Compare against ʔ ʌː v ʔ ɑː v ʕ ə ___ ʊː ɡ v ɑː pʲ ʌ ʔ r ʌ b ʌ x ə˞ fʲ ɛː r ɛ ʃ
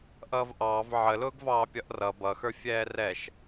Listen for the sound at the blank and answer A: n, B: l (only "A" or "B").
B